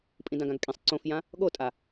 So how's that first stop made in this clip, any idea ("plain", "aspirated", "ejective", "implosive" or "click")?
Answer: ejective